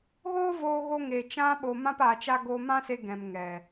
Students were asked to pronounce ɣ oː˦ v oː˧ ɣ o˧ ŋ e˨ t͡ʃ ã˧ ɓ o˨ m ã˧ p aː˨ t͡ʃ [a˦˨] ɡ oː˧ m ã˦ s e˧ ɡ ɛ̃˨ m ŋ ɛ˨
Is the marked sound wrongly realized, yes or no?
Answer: yes